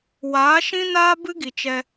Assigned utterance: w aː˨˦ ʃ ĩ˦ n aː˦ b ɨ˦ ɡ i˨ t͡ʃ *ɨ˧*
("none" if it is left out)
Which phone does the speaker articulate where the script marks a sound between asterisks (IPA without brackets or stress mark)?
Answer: ɛ˧